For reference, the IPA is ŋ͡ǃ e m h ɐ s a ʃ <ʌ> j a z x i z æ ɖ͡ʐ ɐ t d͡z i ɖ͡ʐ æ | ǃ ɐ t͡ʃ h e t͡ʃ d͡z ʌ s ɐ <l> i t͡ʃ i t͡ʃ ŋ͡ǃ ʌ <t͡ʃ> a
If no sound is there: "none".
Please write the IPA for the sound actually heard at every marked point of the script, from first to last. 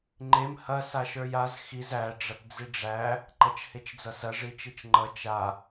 ə˞, ʐ, t͡ʃ

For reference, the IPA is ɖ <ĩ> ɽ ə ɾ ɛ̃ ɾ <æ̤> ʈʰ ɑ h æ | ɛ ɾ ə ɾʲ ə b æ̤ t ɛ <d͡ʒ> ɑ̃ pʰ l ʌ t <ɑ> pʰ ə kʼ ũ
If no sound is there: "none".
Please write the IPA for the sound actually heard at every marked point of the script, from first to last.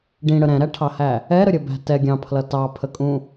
ĩ, æ, ɡʲ, ɑ

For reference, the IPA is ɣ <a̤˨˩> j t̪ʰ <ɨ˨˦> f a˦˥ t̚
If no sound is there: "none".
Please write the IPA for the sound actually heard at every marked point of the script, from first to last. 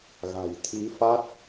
a̤˨˩, i˨˦

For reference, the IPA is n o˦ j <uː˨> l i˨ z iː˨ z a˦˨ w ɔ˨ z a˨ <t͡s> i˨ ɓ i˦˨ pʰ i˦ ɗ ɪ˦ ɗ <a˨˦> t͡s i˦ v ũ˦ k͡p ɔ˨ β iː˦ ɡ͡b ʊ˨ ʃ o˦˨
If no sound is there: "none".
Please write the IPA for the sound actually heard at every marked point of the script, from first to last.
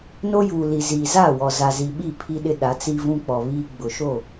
uː˨, z, a˨˦

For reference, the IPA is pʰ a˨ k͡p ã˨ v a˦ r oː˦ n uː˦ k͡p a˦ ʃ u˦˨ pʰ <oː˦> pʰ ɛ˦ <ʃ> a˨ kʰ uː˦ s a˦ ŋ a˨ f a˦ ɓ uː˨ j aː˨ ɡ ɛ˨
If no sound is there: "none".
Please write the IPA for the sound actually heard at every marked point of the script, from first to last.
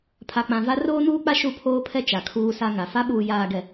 oː˦, t͡ʃ

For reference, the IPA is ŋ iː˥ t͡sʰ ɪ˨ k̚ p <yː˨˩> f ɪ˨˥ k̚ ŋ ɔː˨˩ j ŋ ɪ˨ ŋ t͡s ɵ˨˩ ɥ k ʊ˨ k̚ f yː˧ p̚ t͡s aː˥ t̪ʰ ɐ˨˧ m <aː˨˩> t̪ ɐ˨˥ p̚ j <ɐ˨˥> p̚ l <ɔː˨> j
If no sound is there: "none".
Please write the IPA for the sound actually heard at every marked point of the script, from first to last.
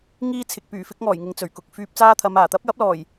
yː˨˩, aː˨˩, ɐ˨˥, ɔː˨˩

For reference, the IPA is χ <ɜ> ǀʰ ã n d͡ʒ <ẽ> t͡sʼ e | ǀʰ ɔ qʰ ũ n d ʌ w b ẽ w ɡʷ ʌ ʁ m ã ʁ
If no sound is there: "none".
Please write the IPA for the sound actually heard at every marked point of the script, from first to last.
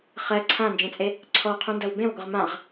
ɜ, ẽ

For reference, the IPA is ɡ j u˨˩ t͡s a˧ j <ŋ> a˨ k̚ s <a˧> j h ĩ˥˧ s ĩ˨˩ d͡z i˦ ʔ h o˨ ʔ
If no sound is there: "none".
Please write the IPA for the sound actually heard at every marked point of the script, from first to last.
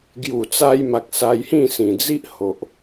m, a˧

